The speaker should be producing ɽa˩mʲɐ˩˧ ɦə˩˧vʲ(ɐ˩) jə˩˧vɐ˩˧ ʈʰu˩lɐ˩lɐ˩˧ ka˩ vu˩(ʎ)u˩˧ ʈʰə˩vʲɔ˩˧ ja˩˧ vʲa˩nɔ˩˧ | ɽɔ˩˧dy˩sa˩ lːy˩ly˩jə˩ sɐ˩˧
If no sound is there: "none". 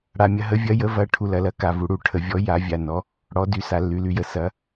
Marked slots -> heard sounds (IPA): ɐ˩˧, ɽ

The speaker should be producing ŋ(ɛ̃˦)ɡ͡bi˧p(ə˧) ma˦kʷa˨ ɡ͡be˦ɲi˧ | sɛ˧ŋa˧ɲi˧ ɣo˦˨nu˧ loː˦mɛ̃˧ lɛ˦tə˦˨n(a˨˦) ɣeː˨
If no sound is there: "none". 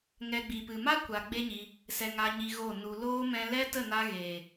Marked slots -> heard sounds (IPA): ɛ˦, ɨ˧, a˧

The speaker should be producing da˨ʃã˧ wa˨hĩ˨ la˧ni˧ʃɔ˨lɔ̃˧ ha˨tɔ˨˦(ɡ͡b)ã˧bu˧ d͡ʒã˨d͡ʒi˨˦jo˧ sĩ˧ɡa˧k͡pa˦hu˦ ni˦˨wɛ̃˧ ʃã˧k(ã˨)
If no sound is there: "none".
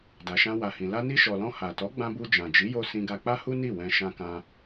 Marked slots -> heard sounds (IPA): ɡ͡b, ã˧

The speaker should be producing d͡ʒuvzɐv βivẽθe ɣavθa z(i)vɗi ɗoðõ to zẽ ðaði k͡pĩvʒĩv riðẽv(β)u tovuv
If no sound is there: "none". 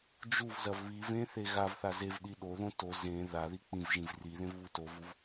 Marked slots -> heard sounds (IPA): e, β

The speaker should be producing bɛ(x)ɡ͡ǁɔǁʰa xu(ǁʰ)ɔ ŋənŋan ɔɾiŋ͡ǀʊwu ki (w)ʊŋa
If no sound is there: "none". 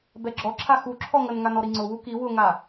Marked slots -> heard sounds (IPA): none, ǁʰ, w

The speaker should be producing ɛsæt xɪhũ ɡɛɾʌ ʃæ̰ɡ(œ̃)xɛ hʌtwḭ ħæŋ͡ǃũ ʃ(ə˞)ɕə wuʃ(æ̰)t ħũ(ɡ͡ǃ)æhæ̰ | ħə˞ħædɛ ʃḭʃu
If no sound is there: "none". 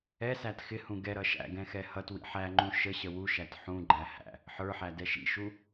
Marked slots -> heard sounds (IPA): ɛ̃, ə, æ, ɡ͡ǃ

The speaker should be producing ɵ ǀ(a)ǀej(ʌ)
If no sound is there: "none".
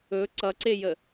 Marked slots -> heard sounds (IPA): ʌ, ə

